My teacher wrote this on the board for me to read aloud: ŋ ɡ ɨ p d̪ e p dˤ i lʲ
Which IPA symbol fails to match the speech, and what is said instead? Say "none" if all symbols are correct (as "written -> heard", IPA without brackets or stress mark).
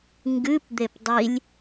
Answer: none